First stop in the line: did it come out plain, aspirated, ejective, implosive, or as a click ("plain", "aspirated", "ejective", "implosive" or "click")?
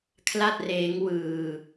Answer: aspirated